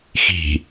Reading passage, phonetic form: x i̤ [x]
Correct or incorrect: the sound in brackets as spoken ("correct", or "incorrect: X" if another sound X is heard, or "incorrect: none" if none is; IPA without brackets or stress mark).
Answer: incorrect: none